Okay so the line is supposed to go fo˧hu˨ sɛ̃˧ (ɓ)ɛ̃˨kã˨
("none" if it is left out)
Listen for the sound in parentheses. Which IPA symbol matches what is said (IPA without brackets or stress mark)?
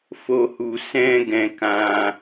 ɡ